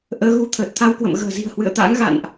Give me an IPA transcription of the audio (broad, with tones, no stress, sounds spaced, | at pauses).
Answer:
ʔ əː˨˦ ɣ u˨˦ t̪ʰ əː˨˩ t̚ t̪ʰ a˧ w k w ə̰˧˨ m ɣ ə̤ː˨˩ z i̤˨˩ ə̯ h w ɨ̰˧˨ ə̯ t̪ a̰ː˧˥ ŋ ɣ a̰˧˨ n ʔ